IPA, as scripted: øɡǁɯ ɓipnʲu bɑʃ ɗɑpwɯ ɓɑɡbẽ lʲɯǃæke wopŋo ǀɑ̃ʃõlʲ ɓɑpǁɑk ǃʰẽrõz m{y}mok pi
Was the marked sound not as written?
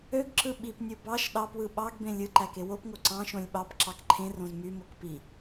no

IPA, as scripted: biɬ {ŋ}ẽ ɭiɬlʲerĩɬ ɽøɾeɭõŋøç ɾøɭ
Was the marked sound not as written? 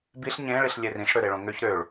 yes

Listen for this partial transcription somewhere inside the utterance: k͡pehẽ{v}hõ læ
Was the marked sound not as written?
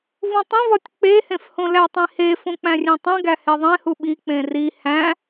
yes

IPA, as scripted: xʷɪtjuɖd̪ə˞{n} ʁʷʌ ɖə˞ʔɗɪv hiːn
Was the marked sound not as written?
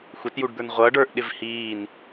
no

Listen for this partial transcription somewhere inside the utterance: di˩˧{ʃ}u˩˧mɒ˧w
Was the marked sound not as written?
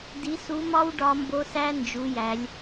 yes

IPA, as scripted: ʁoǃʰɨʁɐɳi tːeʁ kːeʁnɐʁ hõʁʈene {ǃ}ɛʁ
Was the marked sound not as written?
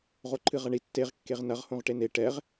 yes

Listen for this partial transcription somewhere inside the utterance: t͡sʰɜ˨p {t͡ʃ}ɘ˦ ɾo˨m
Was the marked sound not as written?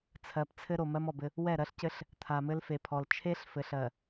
yes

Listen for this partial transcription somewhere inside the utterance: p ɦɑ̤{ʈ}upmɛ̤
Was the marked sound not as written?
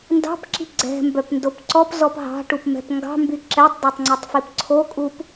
no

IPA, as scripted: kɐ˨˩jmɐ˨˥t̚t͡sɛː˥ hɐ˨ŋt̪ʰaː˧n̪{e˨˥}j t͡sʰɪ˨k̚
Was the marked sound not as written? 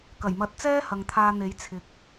no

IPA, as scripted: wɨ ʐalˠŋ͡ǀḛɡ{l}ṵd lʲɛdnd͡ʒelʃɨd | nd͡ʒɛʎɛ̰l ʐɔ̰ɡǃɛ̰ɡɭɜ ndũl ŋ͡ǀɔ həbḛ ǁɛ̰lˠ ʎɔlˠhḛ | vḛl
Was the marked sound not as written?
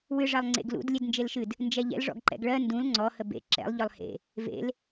no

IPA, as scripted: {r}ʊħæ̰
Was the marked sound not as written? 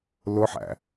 yes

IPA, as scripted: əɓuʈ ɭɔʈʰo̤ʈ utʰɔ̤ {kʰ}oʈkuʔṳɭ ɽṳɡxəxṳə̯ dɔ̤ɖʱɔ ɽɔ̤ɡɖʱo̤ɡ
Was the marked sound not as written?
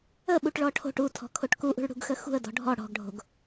no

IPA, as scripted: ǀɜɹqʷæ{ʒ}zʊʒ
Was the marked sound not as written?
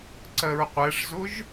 yes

